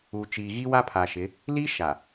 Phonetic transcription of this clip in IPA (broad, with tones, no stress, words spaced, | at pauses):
u˨ t͡ʃiː˨ɣi˦wa˦ pʰa˨ʃɪ˨˦ | li˦ʃa˨